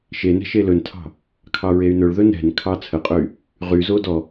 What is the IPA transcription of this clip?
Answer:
ʃenɛ̤ ʃelɵntʰɑ̤ | kʰɑɹey̯nɵɭðɵ nɛ̤nkʰɑ t͡sʰəqʼɵy̯ | ʁyzo dɔ

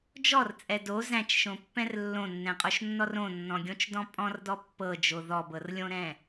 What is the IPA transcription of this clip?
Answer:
d͡ʒɔrt͡sʼɛ do zæ̃t͡ʃʃõpːɛ̃r lːõnːɛ̃qʼoʃnːɔr õnːɔ̃ɡʲõt͡ʃdɔ̃ pʼɔ̃rdɔ pːɤd͡ʒo ðɔbɤrlʲõɾɛ̃

